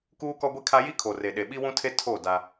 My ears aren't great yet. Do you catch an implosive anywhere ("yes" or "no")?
yes